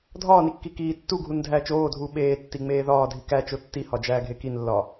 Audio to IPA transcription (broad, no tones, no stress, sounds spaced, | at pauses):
dʱ ɒː n i kː i k iː tː u ɡʱ u n dʱ æː t͡ʃ oː dʱ uː ɓ eː tː i ŋ͡m eː ð ɒː dʱ i k æ t͡ʃ o tː i h ɒ d͡ʒ æː ɡʱ e k i n lː ɒː